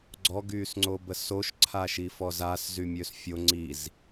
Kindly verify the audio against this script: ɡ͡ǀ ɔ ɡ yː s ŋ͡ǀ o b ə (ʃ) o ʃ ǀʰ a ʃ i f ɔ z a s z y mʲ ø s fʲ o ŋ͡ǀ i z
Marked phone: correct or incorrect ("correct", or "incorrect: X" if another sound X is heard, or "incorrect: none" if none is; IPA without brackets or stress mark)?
incorrect: s